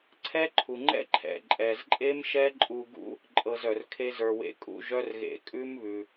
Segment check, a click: present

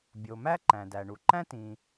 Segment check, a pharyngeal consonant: absent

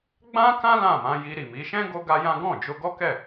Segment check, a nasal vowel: present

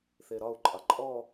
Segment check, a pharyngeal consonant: absent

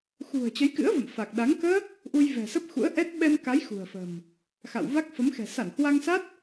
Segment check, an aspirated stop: absent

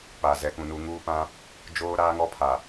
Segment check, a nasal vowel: present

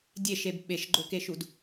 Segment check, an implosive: present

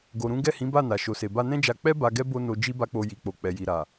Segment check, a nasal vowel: present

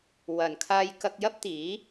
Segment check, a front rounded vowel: absent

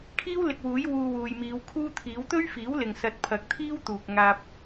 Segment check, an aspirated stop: present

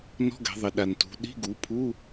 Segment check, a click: absent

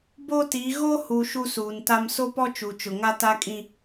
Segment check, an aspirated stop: absent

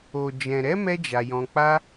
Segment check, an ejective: absent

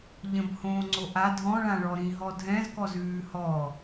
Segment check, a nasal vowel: present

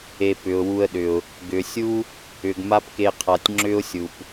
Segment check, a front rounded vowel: present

